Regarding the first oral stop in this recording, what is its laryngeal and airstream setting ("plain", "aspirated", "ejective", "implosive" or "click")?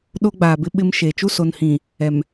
implosive